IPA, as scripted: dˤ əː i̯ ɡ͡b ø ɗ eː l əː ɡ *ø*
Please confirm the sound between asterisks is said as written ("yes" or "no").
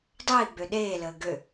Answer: yes